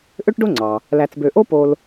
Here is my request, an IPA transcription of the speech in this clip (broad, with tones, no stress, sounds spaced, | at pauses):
ʔ ø˥ ʈ ɖ o˥ ŋ͡ǀ ɑ˩ | l æ˨ t͡s b ø˨ ʔ o˥ p o˦ l